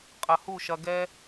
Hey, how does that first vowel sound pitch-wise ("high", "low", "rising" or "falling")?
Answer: low